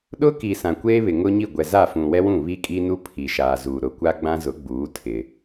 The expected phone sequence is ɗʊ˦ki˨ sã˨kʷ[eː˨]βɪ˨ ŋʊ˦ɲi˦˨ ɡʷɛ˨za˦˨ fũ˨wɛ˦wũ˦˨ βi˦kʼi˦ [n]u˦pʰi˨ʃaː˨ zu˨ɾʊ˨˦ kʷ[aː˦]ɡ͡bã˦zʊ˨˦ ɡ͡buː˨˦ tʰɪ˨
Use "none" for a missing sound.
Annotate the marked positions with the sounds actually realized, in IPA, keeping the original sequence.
eː˦, n, a˦

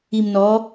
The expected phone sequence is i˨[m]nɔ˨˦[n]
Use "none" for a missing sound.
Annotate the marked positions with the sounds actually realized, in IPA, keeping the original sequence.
m, none

